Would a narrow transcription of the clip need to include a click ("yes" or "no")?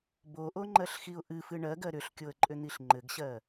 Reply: yes